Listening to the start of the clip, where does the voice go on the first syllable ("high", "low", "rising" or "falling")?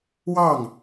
falling